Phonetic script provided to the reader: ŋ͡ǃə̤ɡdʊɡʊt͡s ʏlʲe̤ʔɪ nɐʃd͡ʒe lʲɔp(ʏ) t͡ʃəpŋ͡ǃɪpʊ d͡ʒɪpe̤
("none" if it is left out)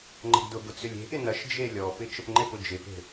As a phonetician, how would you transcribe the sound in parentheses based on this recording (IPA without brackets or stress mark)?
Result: ɪ